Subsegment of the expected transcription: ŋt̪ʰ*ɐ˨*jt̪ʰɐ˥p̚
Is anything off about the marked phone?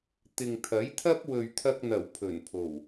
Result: yes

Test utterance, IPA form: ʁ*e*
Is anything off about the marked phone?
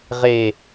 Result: no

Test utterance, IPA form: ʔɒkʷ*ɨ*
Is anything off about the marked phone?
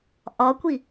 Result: yes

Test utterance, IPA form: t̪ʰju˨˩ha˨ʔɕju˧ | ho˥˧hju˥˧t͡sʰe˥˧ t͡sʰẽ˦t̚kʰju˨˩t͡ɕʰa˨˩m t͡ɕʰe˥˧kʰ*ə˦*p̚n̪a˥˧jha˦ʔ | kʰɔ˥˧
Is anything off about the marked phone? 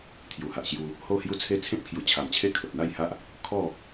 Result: yes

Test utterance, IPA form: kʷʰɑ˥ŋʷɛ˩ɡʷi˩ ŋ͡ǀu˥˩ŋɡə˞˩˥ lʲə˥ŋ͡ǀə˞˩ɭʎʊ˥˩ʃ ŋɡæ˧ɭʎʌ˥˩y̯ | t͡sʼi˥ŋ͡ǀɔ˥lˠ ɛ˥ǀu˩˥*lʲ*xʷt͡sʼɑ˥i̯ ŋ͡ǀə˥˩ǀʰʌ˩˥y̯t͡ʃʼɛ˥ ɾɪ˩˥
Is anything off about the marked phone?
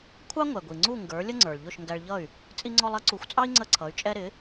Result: yes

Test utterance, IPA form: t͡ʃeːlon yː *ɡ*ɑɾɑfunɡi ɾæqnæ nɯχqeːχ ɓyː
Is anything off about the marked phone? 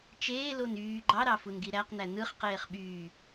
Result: yes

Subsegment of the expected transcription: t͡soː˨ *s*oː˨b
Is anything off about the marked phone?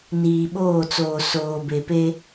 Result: no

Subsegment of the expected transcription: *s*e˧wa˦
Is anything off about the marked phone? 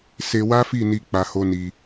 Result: no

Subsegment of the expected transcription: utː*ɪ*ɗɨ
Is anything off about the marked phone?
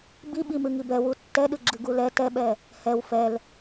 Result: yes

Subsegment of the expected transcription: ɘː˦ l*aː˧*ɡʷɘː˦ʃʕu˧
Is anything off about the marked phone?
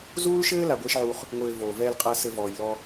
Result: yes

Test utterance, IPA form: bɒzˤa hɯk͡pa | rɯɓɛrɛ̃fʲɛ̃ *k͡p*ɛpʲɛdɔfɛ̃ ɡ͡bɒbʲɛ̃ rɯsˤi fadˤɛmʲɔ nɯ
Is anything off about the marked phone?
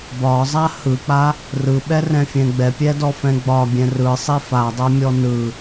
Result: yes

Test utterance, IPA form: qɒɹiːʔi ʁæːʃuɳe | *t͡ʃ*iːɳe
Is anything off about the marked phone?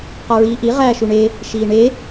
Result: yes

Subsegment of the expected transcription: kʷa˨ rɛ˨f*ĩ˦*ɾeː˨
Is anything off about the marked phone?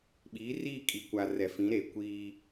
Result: yes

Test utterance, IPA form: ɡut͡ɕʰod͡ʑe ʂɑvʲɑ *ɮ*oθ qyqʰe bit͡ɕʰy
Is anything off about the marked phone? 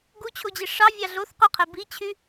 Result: no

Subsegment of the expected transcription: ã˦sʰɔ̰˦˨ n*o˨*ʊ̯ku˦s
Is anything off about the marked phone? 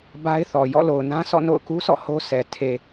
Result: yes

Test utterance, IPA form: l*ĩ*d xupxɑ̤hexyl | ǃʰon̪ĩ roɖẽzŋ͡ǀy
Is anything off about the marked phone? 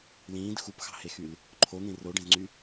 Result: yes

